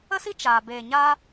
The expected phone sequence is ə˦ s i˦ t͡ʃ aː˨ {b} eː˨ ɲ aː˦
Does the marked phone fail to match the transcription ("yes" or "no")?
no